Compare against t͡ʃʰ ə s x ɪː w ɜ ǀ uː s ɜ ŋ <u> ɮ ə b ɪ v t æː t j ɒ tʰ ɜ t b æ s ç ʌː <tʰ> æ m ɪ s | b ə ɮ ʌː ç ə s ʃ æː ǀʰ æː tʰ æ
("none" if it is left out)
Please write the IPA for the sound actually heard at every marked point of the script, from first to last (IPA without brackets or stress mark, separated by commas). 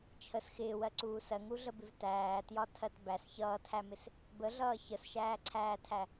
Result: u, tʰ